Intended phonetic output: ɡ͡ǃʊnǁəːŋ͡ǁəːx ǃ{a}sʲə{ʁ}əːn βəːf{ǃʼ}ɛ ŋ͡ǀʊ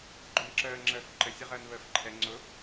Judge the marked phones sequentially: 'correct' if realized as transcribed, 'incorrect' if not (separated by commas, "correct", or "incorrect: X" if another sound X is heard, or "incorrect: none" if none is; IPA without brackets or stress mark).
incorrect: ə, correct, incorrect: ǃʰ